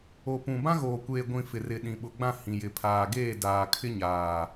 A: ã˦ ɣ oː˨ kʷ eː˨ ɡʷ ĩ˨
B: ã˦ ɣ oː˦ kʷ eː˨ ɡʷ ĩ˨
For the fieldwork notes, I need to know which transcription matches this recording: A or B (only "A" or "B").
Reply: A